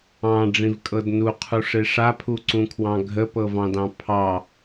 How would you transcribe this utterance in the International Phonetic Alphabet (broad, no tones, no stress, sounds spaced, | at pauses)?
ɑ̃ ɖ͡ʐ ĩ v kʼ ɤ d n u qʰ u ʂ e ʂ a pʰ u ǀ ũ kʰ w ɑ̃ ɡʱ ə p ɤ v ɑ̃ d ɑ̃ pʰ ɑ